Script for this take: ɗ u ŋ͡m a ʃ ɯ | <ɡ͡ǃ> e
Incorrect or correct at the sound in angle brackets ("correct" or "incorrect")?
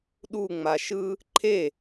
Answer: incorrect